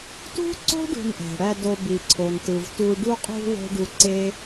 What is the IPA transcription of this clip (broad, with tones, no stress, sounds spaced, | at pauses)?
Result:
t ṳ˥ ǀ o̤˥ ɖ ṳ˧ n ʔ æ̤˩ ɽ æ˧ d o˧ b i˩ ǀʰ o˩ n t ɯ˩ v t u˧ ɖ u˧ qʼ ṳ˧ w o̤˥ ɖ u˧ ǀ e˥